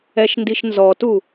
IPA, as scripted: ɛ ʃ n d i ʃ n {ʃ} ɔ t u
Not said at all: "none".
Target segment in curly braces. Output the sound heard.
z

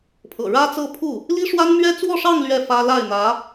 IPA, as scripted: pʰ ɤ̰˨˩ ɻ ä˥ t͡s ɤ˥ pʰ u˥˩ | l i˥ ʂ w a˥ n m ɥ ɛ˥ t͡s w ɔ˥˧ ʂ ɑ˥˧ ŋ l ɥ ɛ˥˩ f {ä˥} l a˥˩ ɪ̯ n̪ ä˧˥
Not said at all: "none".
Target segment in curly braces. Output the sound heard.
ä˥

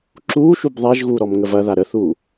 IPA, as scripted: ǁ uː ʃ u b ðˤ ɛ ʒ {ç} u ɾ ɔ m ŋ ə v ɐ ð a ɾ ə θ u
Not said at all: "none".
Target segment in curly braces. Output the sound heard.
ɣ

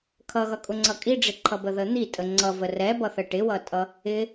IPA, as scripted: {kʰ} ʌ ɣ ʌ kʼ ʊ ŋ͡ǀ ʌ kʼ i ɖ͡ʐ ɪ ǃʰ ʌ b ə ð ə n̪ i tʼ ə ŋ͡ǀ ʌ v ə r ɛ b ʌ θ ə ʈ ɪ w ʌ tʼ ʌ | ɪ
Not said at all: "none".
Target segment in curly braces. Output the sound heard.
kʰ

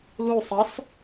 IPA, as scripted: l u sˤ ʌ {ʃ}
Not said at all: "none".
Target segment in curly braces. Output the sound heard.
s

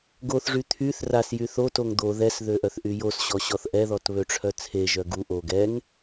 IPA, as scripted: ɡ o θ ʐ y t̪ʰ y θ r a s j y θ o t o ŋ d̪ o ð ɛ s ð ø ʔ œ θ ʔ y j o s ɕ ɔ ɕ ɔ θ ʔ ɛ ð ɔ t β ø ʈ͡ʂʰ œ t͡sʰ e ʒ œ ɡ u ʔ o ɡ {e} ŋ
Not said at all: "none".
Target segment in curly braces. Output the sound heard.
ɛ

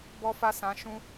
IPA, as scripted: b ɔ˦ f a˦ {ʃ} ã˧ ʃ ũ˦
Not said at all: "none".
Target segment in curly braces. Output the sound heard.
s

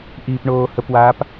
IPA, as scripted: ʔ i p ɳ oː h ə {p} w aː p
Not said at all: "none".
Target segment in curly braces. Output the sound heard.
p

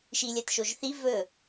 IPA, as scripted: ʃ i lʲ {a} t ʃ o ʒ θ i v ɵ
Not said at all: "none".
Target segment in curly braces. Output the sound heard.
a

